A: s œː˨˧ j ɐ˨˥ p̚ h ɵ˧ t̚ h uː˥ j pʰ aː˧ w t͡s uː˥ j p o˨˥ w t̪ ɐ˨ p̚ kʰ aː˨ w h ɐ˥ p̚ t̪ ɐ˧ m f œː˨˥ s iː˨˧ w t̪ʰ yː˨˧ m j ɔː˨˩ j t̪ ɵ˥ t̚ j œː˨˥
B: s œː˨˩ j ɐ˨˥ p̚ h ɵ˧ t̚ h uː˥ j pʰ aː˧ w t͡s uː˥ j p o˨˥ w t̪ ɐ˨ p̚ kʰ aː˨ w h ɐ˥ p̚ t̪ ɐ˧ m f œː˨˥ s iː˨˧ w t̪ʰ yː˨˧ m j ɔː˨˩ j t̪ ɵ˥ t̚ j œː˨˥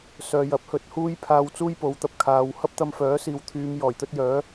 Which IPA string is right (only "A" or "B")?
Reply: A